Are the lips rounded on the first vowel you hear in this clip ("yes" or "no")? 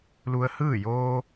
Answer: yes